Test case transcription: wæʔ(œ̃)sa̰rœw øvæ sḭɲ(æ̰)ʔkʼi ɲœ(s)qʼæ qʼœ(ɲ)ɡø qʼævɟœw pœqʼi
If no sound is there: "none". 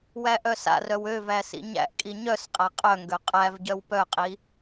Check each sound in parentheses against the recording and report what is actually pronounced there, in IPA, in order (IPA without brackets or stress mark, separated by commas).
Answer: œ, æ̰, s, ŋ